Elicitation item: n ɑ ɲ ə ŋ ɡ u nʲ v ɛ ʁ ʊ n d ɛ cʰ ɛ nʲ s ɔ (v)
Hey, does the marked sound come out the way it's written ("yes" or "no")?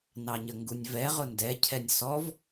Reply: yes